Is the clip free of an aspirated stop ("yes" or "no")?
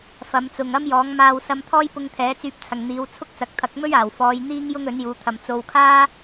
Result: no